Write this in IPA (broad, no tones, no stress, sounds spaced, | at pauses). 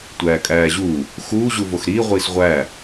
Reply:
tʷ æː kʼ æː ʑ uː | x uː ʑ u v o x ɾ iː ʁʷ iː s ʁʷ æː